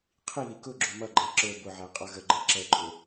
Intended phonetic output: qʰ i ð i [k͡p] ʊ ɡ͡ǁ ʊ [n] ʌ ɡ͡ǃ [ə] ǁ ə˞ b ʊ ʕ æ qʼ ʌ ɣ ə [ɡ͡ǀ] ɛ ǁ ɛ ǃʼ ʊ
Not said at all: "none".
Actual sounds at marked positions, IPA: k, m, æ, ɡ͡ǃ

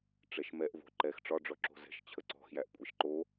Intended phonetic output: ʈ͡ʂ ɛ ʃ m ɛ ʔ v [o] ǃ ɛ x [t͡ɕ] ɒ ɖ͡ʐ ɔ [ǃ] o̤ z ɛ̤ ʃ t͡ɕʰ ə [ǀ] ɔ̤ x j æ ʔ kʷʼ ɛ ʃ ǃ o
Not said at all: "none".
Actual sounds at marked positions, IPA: o̤, ʈ͡ʂ, ǁ, ǀ

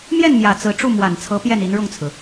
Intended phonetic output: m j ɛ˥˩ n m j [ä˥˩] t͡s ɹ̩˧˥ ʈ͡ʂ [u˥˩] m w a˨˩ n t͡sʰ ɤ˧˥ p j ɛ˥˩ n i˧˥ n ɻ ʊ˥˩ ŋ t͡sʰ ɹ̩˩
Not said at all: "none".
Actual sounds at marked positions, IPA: ä˨˩, u˥˩

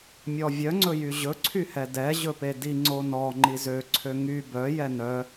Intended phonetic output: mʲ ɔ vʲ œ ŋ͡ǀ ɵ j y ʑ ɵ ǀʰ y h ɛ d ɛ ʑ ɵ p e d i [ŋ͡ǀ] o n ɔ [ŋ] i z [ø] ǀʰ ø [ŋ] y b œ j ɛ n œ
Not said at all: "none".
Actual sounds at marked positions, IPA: ŋ͡ǀ, ŋ͡ǃ, ø, ŋ

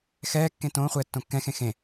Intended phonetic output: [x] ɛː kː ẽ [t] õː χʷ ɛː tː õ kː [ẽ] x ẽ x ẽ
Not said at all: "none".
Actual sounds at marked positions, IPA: x, t, ɛ̃

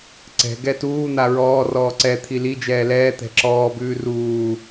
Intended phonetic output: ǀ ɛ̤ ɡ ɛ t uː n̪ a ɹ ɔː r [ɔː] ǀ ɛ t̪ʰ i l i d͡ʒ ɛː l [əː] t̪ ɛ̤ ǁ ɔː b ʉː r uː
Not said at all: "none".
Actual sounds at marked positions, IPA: ɔː, ɛː

